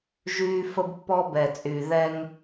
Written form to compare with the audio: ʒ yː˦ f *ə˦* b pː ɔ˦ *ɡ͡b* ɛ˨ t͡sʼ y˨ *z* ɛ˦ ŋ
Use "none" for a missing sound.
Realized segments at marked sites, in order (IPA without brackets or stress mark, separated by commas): ə˦, b, ð